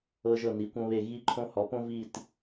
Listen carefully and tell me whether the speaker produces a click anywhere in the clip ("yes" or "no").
yes